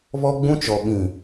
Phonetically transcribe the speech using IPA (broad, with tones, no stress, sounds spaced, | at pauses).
β ɔ˦ ɡ͡b ũ˦ t͡ʃ ɔ˨ ɓ ĩ˨